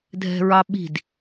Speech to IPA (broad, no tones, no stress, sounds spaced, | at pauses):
dʱ ɛ̤ ɹ ɑ ɓ i̤ d